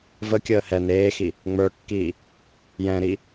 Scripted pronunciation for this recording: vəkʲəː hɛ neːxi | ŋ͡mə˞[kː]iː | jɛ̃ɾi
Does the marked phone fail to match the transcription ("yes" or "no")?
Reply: no